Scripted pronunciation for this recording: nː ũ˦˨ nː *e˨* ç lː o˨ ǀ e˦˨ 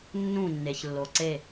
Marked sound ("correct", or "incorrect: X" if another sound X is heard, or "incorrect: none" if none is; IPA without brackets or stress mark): correct